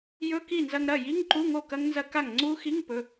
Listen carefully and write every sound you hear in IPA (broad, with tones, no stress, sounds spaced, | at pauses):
j ɵ˧˥˧ k i˥˩ n z ɐ˧ ŋ ɾ ɐ˥˩ j i˧˥˧ ŋ ǃ u˧˥˧ ŋ o˥˩ k ɐ˦˥ ŋ n z ɐ˦˥ k a˥˩ ŋ ŋ͡ǀ u˦˥ x i˧˥˧ ŋ p ɵ˩˧˩